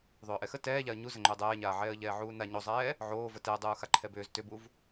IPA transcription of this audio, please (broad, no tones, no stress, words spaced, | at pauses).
ðˤʏːʔɛxə tɛːʎaə̯ ɲuzə ŋ͡ǃʏːdˤɛːɲaːʕɛːə̯ ʎɛːʕuːna ɲozˤɛː | ʕoːvə tɛə̯dˤuː xaǃʰɛbʏːz tʏbuv